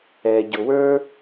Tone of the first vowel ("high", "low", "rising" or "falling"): low